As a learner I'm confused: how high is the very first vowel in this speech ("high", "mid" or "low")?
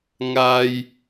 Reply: low